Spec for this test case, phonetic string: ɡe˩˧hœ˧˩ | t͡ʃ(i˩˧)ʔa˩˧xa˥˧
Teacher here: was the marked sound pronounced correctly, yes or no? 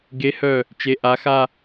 no